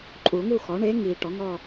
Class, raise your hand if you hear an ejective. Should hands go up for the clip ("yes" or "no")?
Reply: yes